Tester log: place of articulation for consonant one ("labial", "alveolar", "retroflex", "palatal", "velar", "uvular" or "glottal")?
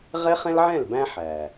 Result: uvular